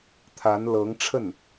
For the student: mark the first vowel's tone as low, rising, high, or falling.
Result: rising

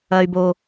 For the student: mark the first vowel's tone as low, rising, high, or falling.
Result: high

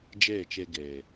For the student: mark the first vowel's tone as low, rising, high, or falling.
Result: falling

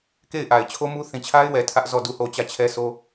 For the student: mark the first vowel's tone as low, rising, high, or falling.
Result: falling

